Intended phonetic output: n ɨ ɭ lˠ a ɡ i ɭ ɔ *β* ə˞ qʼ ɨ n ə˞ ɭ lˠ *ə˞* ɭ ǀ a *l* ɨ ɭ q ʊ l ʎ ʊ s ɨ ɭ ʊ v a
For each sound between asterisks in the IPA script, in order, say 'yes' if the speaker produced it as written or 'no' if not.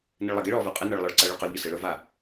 no, yes, no

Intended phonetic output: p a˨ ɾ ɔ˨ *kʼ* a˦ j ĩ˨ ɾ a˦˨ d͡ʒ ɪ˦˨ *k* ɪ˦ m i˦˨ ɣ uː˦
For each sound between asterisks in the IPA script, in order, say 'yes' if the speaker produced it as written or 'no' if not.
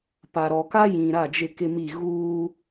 no, yes

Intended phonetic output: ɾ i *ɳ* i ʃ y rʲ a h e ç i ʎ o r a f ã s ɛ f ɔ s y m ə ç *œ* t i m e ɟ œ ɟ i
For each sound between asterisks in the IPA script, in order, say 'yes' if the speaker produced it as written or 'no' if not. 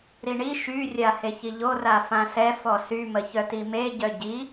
yes, yes

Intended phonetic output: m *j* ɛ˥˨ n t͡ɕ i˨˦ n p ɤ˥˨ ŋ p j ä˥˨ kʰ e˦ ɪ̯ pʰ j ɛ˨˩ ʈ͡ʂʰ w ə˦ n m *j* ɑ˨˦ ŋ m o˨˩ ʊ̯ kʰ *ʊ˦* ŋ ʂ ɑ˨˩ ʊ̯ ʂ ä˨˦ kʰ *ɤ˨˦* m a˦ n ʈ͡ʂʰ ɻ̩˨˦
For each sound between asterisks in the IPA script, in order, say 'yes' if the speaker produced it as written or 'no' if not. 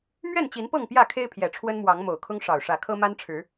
no, no, yes, no

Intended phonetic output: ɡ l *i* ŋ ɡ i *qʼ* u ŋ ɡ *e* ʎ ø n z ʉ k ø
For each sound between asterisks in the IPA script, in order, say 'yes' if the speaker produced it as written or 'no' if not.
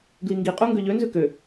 yes, yes, no

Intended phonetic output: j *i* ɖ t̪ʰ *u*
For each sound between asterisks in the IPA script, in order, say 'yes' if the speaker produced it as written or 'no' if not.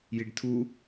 yes, yes

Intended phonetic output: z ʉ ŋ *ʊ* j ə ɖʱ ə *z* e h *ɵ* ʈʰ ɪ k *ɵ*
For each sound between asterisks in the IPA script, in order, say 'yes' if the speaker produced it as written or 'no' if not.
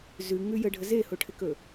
no, yes, no, yes

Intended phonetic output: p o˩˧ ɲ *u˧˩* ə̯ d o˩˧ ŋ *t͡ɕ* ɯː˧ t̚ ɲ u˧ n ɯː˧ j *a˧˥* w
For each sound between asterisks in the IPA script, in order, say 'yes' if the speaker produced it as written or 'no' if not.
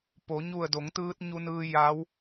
yes, no, yes

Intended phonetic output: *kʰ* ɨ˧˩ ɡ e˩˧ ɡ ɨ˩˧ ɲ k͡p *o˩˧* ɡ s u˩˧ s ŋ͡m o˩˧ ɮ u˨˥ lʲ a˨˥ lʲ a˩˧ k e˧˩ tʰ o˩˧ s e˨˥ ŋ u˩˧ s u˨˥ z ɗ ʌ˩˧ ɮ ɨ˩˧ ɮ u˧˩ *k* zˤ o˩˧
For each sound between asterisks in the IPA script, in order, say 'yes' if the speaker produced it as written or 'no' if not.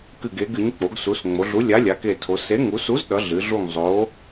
no, yes, no

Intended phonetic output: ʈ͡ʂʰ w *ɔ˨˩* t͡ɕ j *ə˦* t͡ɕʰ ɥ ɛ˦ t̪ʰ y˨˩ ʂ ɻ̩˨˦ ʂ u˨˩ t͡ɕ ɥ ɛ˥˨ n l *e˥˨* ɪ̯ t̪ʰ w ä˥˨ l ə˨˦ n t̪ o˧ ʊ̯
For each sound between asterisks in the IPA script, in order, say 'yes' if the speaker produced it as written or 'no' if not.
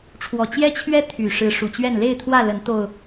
yes, no, yes

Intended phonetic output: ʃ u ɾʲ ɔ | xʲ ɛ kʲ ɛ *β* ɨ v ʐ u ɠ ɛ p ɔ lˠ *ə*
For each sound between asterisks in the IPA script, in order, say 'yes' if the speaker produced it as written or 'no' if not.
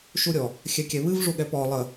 yes, yes

